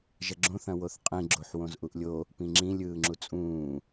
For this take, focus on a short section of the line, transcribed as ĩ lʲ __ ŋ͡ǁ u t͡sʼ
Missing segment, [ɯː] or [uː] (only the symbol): ɯː